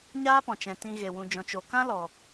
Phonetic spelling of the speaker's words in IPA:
ɲ aː˦ p ɔ̃˨ t͡ʃ ɛ̃˧ t ĩ˦ ɣ e˧ w ũ˧ d͡ʒ ɔ̃˨ t͡ʃ o˨ k ã˦ l ɔ˨

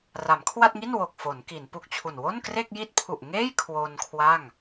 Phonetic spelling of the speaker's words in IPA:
r a˩˦ m kʰ w a˥˩ t̚ ŋ i˥˩ n w o˨˩ k̚ f o˩˦ n k i˩˦ n p u˨˩ k̚ t͡ɕʰ u˨˩ n w o˥˩ n k r e˥˩ k̚ j i˥˩ t̚ pʰ u˨˩ ʔ ŋ eː˥˩ j kʰ w o˧ n kʰ w a˥˩ ŋ

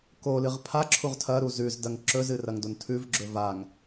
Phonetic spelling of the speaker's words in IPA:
k o l ɨ ʁ pʰ a ǁʰ u ʁ tʰ ɐ ɾ u z ʉ z d ɐ ŋ ǁ ɵ z ɨ r ɐ ŋ d o n tʰ ʉ v ɡ͡ǁ ɵ v a ŋ

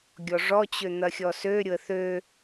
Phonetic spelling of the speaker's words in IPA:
ɡʲ ɔ ʐ ɔ t͡ɕ ø n̪ ɐ xʲ ɔ s ø ɾʲ ʊ ə̯ θ ø

